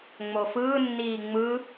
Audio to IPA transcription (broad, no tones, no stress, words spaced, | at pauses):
ŋ͡mofɯːnːiː ŋ͡mɯ